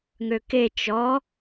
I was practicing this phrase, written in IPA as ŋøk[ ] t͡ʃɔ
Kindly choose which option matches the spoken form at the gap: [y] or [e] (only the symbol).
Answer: e